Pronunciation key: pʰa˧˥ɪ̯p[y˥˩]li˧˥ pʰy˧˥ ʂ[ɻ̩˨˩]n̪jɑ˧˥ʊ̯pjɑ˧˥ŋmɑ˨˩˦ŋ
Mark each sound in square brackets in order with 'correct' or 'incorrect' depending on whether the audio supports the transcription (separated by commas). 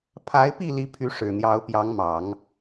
incorrect, correct